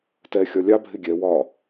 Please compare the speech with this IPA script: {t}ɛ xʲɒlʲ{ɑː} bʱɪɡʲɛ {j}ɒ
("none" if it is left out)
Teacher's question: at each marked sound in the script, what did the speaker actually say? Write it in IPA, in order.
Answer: t, ɑ, w

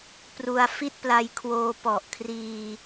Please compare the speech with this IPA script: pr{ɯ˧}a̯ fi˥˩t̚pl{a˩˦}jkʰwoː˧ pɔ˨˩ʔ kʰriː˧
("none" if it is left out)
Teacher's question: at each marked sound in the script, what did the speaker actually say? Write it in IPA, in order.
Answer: u˧, a˧

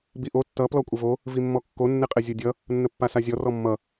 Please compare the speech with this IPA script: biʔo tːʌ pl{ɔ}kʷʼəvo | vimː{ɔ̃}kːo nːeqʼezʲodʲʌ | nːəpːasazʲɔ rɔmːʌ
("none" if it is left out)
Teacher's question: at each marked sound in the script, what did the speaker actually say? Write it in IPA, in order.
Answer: ɔ, ɔ

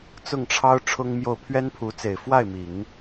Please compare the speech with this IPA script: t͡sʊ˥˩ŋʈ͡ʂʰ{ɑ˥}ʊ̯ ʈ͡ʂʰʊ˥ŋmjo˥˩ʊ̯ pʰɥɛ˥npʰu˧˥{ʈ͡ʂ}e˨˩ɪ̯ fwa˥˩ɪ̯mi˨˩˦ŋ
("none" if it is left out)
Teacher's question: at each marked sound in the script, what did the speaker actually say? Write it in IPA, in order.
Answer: ɑ˥, t͡s

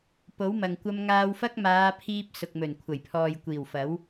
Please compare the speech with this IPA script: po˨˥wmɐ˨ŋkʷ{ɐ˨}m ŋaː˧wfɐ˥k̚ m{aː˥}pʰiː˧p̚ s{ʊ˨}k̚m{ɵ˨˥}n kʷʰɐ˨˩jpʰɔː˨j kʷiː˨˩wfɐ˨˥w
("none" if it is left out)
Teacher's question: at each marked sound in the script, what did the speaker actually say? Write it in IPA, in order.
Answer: ɐ˧, aː˨˧, ʊ˨, ɵ˨˩

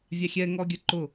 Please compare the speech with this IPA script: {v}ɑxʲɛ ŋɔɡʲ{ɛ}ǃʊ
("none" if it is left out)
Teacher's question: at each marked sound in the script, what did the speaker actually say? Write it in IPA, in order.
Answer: vʲ, ə

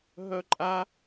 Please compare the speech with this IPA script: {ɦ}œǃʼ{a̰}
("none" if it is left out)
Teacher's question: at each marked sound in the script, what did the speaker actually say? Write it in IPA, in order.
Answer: ɦ, a

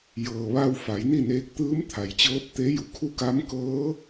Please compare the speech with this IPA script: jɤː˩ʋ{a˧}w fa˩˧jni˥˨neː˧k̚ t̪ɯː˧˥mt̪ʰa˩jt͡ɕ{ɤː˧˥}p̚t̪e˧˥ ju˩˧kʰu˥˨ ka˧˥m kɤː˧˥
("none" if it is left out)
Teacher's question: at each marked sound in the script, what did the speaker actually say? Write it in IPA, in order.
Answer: a˧, ɤː˧˥

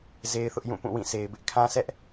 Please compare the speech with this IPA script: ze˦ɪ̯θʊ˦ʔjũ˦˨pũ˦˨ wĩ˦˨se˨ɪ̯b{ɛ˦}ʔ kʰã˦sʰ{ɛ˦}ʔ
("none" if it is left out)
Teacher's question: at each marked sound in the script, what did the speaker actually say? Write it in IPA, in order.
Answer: ɪ˦, ɛ˦

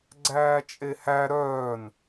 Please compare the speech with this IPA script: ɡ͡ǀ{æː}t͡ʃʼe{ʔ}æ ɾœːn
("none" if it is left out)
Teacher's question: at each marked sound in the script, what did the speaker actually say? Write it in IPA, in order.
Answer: æː, h

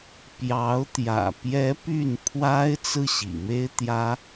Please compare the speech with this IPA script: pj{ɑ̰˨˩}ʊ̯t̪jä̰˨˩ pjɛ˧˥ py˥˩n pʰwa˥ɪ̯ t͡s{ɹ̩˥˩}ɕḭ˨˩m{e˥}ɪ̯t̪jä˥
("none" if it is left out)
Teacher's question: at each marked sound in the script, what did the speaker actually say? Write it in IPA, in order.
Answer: ɑ˧˥, ɹ̩˥˩, e˥

